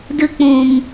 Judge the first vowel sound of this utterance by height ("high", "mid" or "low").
high